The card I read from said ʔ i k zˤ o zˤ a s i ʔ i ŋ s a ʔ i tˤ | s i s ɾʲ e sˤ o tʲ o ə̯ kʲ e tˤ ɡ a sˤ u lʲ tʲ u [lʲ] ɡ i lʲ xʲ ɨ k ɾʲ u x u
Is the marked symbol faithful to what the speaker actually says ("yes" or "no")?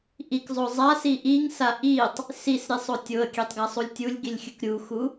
yes